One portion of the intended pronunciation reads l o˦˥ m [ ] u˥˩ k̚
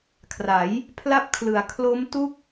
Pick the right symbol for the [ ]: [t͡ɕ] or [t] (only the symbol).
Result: t